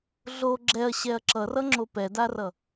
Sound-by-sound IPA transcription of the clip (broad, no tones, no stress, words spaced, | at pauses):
ɮo ɡ͡ǁɛɐ̯ɕɛɐ̯ ǁʌrʌŋ͡ǁo pɛdarʌ